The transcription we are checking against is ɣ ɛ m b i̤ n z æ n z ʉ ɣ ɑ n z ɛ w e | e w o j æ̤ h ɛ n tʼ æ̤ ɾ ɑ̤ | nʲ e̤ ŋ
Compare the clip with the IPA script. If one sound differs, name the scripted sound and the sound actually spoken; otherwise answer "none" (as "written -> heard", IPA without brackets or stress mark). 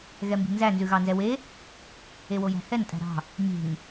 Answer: none